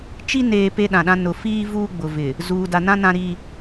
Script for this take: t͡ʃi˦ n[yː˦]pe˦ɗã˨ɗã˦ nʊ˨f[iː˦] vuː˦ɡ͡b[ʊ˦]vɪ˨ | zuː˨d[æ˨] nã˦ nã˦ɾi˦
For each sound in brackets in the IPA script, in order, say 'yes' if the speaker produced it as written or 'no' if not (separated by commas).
no, yes, no, no